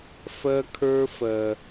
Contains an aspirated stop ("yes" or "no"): yes